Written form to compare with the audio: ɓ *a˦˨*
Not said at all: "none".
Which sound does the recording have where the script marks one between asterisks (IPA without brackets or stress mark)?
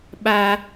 a˦